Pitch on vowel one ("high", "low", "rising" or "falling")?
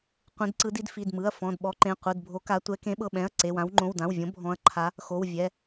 rising